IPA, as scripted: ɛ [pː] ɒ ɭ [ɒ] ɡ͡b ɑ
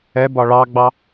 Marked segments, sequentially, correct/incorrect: incorrect, incorrect

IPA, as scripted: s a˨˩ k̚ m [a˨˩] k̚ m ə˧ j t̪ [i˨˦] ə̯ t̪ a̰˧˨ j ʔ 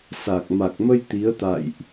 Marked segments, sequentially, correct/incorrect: correct, correct

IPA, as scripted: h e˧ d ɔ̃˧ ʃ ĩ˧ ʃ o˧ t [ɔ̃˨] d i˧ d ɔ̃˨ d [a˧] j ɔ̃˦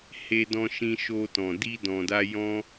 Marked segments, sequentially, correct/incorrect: correct, correct

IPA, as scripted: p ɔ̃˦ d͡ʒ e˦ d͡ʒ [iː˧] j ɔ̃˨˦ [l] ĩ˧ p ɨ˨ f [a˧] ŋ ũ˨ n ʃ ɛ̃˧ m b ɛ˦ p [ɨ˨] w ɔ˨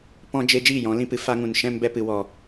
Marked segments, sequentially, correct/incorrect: incorrect, correct, correct, correct

